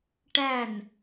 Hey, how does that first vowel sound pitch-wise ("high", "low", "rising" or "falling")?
falling